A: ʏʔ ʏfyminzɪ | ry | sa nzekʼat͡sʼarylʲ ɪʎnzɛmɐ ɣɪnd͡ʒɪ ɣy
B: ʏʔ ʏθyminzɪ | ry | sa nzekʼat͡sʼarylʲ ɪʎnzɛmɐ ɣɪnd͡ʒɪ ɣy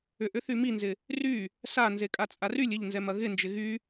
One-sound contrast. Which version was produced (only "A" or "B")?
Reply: B